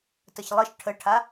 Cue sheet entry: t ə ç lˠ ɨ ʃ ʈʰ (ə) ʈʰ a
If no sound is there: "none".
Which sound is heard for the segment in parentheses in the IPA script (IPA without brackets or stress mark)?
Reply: ə